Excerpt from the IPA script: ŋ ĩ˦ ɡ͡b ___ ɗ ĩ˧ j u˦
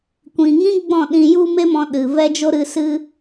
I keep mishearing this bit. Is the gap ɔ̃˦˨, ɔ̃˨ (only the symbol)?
ɔ̃˦˨